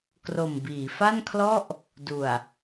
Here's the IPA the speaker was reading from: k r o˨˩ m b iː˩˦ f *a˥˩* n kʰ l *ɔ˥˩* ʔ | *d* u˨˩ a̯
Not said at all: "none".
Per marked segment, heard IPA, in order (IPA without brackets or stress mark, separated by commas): a˥˩, ɔ˥˩, d